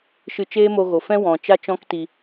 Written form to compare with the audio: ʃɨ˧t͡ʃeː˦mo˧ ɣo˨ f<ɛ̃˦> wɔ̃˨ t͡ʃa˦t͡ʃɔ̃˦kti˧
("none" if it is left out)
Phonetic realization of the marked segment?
ɛ̃˦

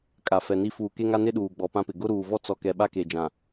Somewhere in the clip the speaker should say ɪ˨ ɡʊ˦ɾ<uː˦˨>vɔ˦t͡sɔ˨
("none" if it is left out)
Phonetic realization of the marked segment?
uː˨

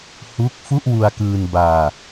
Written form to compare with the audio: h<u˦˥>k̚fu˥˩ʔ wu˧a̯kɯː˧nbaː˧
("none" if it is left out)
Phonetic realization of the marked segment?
u˦˥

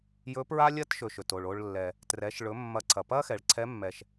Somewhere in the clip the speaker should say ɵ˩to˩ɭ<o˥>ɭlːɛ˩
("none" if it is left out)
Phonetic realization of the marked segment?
o˧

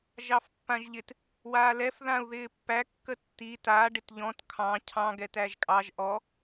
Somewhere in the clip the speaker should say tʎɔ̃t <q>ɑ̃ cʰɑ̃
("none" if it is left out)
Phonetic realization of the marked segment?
kʰ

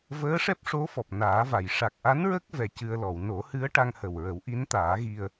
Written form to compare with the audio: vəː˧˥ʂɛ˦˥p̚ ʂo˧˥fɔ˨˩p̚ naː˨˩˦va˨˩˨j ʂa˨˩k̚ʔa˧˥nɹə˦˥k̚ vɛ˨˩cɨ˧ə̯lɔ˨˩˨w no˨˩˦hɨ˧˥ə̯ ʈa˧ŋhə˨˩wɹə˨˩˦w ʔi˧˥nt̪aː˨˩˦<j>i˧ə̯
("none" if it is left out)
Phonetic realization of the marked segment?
ɣ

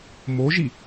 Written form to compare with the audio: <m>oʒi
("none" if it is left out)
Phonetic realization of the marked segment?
m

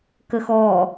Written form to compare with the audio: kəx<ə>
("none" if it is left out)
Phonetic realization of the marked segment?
ɔ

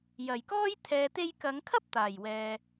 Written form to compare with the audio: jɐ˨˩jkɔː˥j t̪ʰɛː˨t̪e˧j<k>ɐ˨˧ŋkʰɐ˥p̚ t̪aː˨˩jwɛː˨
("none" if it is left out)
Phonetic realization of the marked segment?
k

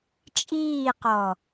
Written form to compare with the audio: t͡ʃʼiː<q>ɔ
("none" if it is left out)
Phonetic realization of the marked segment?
q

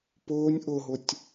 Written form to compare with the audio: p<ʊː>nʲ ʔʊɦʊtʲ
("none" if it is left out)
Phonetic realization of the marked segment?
ʊː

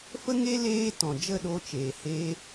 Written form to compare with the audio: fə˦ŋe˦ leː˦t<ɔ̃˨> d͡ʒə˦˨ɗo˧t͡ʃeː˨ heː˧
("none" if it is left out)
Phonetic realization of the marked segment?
ɔ̃˨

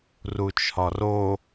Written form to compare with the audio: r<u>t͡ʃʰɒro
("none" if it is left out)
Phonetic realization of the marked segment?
u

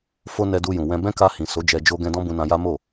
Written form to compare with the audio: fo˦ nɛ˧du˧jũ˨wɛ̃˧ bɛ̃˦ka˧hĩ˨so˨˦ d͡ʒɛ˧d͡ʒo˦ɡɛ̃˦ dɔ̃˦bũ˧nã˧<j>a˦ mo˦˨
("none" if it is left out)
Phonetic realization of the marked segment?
j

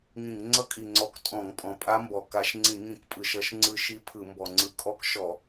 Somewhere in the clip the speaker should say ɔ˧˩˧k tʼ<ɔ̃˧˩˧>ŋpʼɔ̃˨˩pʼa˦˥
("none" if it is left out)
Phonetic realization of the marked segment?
ɔ̃˧˩˧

